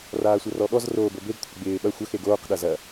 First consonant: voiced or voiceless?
voiced